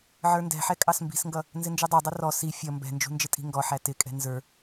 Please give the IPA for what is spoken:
ʕ ə˞ n d ɛ̤ ħ ɛ kʼ ɑ s m b i̤ s ŋ ɡ ʌ | n z ɪ n d͡ʒ u dˤ æ dˤ ʌ r ɔ s i fʲ ʌ m b ɛ̤ n d͡ʒ ṳ n d͡ʒ ɪ tʼ i̤ ŋ ɡ ɔ ħ æ t ɪ kʼ ɛ̤ n z ə˞

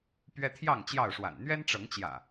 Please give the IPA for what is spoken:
p ɥ ɛ˦ t̪ʰ j ɑ˥˨ ŋ t͡ɕ j ɑ˥˨ ʊ̯ ʂ w a̰˨˩ n n̪ ɥ ɛ˦ n ʈ͡ʂ ɤ˨˦ ŋ t͡ɕ j ä̰˨˩

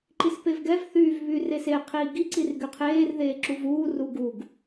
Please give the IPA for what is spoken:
ǃ i s p e v ɡ ɛ v θ yː v β y r e s e qʰ iː ɡ i ǀ i r ɡ y qʰ eː r ð eː ǁ u v uː r u ɡ u ɡ

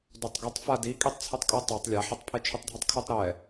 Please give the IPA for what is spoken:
d o tˤ ɡ ʌ tˤ f a d i kʼ i tˤ t͡sʰ u tˤ kʼ ɯ tˤ o tˤ lʲ a ħ ʌ tˤ pʰ e t͡ʃʰ u tˤ dʱ ɛ tˤ kʰ u tˤ ɾ ɛ

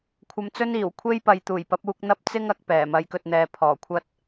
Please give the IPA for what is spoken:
kʷʰ ɐ˧ m t͡s ɵ˥ n iː˨˩ w kʷʰ e˥ j p ɐ˨ j t̪ uː˨˩ j p ɐ˨˥ p̚ uː˧ k̚ n̪ ɐ˥ p̚ t͡s ɪ˥ ŋ ɐ˨˥ k̚ p ɛː˨˩ m ɐ˨˧ j k ɵ˨ t̚ n̪ ɛː˨ pʰ ɔː˨˩ kʷʰ ɐ˥ t̚

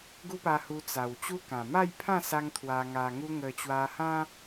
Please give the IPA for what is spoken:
ɡ u˦ p a˧ h u˧ t͡s a˨˩ w t͡ɕ u˦ k ã˨˩ m a˥˧ j pʰ ã˥˧ s a˦ ŋ t̪ʰ w a˧ ŋ a˧ ŋ u˦ ŋ ə˧ t͡ɕ w a˧ h ã˦

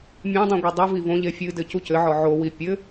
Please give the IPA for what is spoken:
mʲ ã dˤ ũ ɡʷ e dˤ ɨ v i v õ ʎ e fʲ ɨ d ɘ c u c ɘ ʕ ɔ ʕ o w i pʲ ɘ

